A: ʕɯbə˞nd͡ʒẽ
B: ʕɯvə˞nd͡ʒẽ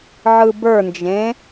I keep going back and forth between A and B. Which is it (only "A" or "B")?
A